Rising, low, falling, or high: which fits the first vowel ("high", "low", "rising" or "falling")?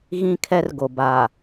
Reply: high